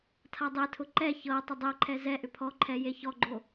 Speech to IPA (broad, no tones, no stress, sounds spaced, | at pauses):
tʰ a dˤ e tʰ ʊ ǃ ɛ ç ɤ tˤ ʊ dˤ e ǃʰ ɛ z ɛ ʔ ʏ pʰ ɔ ǃʰ ɛ j e ç ɔ ɡ͡ǃ o